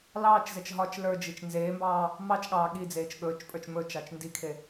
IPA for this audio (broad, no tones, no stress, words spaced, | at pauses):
lɑːt͡ʃzɛt͡ʃ ɦɒt͡ʃ lə˞d͡ʒit͡ʃ nzeːmbɑː | mɑt͡ʃɠɑː ɠid͡zeːt͡ʃ ɠɵːt͡ʃpʼə˞t͡ʃ mɵt͡ʃɑt͡ʃ ndikʰe